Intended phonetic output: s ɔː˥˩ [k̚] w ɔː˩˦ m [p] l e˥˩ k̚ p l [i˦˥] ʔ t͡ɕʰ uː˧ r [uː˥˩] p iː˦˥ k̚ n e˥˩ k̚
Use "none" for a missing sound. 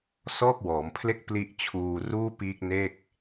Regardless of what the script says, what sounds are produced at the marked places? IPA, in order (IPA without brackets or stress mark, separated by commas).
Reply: k̚, pʰ, i˦˥, uː˥˩